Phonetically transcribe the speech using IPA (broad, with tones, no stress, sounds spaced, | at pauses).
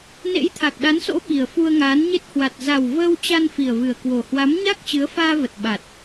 n ḛ˧˥ j t̪ʰ a˨˩ k̚ ɗ a˨˦ n s o̰˧˥ ɓ i˨˩ ə̯ f u˧ ə̯ ŋ aː˨˦ n ɲ e˦˥ t̚ h w a˨˩ t̚ z a˨˩ w v əː˧ w t͡ɕ a˧ n f i˨˩ ə̯ v ɨ˨˩ ə̯ k w o˨˩ h w a˨˦ m ɲ a˦˥ k̚ t͡ɕ ɨ˨˦ ə̯ f aː˧ v ə˨˩ t̚ ɓ a˨˩ t̚